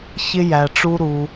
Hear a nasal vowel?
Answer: no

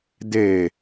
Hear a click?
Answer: no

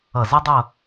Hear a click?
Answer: no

